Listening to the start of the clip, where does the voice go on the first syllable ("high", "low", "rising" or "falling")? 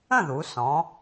falling